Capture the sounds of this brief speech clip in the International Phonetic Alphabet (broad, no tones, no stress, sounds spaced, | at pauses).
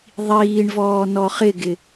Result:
ðˤ iː ɳ v ɔː n ɔ χ ɪ ɡ ɪ